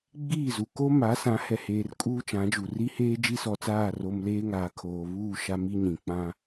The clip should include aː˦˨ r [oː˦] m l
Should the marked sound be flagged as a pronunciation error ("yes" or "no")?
yes